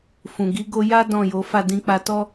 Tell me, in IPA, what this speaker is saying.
f ũ˨ ɡ i˨˦ ɡ o˧ j a˦ d ɔ̃˦˨ j o˨˦ f a˦˨ d ĩ˧ k͡p a˧ t ɔ˦

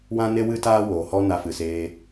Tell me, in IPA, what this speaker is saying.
w ã˦ n e˦ w ɨ˦ t aː˦ w oː˨ h ɔ˦ n a˧ f ɨ˨ s eː˧

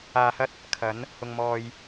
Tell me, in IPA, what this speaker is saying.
aː˧ h ɐ˥ t̚ | kʰ ɐ˨˥ n | h ʊ˧ ŋ m ɔː˧ j

